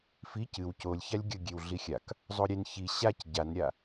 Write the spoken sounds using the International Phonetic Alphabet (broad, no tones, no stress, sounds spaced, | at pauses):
f i c ɨ w c o lʲ ç a lʲ ɡʲ ə ɡʲ e w ɮ i xʲ a k | zˤ o ɾʲ e n ç i ɕ a c ɟ a n ɾʲ a